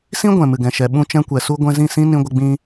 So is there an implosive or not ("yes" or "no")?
yes